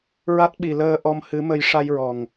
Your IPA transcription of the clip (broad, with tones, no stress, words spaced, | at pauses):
ɹa˦˥t̚ɓi˨˩ləː˧ ʔɔ˧mhɨ˧˥mə˧j ʂa˧jɹɔ˨˩ŋ